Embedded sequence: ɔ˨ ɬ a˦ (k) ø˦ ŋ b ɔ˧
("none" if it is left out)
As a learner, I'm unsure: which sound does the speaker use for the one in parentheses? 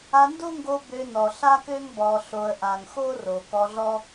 k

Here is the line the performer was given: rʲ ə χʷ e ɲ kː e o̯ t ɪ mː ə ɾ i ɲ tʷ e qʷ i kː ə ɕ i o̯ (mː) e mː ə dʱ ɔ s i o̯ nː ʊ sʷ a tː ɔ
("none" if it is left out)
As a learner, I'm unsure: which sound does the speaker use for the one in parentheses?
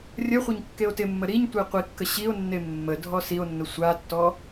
nː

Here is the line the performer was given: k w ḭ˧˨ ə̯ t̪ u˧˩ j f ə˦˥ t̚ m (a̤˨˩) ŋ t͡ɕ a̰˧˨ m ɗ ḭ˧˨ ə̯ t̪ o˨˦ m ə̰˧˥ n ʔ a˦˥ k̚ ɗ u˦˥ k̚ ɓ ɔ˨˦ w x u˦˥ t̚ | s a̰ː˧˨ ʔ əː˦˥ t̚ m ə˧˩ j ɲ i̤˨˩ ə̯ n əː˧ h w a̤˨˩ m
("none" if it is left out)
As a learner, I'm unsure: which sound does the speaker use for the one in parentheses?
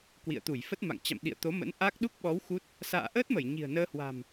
a̰˧˨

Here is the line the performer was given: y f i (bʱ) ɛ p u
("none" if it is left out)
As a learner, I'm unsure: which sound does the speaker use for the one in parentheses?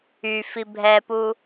bʱ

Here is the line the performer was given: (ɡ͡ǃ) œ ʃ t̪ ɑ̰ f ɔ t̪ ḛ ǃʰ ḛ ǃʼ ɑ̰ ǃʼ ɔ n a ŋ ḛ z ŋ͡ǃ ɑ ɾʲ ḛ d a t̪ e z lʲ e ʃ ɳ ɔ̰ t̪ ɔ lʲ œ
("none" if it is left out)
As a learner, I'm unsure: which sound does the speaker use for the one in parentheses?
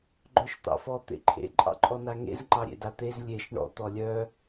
ɡ͡ǃ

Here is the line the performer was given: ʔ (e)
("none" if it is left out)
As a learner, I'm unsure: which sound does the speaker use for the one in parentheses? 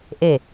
e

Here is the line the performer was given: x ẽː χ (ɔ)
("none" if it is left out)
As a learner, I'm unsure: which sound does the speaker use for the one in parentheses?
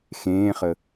ə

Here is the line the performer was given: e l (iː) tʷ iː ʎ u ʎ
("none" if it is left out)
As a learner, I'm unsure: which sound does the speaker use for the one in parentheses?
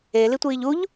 i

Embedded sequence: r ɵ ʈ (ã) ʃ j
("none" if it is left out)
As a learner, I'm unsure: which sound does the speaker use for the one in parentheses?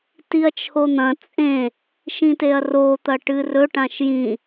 ã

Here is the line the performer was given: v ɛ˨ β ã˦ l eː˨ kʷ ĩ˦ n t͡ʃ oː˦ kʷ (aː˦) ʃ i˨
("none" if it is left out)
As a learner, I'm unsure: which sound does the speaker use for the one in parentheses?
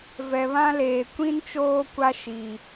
a˦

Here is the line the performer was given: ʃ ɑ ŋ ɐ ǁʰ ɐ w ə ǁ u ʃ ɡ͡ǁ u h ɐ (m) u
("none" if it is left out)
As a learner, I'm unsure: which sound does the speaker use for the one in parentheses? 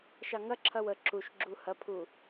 pʰ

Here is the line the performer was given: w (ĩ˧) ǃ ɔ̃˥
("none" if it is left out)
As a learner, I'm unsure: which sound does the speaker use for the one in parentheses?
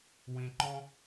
ĩ˧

